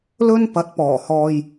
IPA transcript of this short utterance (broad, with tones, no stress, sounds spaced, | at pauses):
l ɵ˥ n p ɐ˨˥ t̚ p ɔː˨˩ h ɔː˨ j